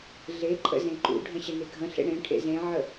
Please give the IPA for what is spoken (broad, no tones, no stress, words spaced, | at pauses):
ɮeǃʼə̰ zẽǃṵɖʱə̃ ɕəneɡʱə̃ɬḛ ɽẽʈʰḛ zẽʕə